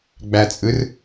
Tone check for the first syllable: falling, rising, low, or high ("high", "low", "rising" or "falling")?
low